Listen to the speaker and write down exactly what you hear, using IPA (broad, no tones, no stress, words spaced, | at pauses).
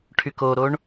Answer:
ʈʰykoɾoɳ